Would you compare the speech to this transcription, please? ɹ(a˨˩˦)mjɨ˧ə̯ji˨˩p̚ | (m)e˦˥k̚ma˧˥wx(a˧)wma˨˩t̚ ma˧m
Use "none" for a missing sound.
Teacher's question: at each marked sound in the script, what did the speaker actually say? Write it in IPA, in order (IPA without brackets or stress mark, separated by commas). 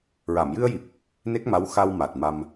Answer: a˨˩˨, n, a˧